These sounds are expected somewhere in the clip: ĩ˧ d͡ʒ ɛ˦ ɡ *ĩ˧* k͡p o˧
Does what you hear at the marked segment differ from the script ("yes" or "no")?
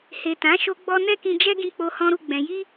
no